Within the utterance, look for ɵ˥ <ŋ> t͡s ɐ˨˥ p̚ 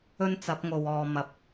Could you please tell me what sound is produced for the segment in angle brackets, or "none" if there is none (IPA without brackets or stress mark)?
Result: n